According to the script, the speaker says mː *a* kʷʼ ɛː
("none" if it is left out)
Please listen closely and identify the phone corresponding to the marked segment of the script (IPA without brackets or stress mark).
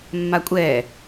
a